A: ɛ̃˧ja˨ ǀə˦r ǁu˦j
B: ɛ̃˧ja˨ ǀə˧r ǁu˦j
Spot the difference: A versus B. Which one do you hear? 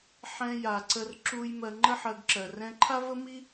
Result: B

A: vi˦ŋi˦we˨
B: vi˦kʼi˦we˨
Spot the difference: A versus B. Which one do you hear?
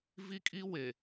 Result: B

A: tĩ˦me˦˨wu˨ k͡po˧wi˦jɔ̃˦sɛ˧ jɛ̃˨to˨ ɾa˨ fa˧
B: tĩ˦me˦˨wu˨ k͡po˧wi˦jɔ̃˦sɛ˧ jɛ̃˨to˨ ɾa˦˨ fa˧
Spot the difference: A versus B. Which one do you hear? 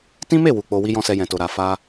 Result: A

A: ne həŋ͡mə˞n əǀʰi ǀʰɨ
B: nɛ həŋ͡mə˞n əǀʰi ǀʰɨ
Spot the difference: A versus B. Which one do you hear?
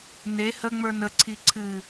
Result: A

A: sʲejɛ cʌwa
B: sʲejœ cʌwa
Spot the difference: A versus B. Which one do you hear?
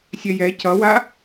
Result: A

